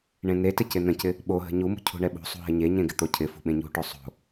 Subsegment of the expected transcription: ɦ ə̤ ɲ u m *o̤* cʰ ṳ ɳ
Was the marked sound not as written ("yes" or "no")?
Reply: yes